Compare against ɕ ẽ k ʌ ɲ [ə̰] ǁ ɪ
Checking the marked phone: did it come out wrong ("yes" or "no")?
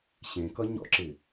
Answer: yes